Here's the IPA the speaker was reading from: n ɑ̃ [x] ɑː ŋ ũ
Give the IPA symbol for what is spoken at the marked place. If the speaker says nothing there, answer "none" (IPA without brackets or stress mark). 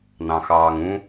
x